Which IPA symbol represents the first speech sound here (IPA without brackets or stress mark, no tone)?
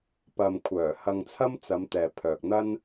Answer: p